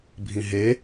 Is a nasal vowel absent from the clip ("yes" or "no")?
no